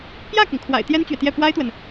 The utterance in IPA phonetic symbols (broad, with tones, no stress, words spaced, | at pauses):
pjä˥˩kʊ˩ŋkʰwa̰˨˩ɪ̯ t̪jɛ˥nt͡ɕɥɛ˨t̪jɛ˥˩ pwa˥ɪ̯t̪wə˨n